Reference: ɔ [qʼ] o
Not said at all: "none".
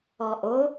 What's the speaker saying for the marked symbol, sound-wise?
ʔ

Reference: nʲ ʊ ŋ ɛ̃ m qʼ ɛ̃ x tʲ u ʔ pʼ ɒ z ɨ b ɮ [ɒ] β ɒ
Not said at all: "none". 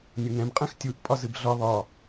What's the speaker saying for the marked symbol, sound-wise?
ɒ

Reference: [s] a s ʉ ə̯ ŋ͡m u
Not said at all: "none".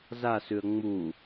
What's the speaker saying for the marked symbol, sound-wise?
z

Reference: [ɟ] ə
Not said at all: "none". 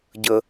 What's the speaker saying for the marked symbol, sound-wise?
ɟ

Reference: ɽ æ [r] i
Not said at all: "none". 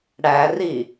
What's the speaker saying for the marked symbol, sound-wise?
r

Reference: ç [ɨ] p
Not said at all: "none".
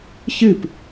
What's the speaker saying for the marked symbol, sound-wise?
ɨ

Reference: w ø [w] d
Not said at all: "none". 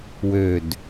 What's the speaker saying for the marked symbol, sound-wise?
none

